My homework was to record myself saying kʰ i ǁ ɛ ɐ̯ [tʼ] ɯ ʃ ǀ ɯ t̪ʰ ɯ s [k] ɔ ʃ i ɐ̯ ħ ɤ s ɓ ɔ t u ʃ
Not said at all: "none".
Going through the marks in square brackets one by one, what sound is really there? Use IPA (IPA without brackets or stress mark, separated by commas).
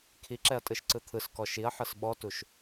tʼ, k